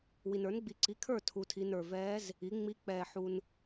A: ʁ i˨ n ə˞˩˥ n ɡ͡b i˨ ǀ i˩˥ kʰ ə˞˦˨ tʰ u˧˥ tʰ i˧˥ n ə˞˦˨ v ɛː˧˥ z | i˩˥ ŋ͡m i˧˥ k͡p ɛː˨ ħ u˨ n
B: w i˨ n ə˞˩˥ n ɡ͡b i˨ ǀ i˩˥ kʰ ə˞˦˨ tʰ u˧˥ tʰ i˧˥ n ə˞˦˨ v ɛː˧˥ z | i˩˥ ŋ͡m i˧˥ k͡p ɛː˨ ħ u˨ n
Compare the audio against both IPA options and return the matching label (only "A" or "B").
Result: B